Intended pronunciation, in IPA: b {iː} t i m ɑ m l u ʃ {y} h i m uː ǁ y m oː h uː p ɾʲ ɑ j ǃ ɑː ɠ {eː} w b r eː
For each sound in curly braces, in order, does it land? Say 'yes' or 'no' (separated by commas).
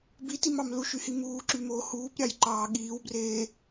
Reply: no, yes, no